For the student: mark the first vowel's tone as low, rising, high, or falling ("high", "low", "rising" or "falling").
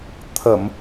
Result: low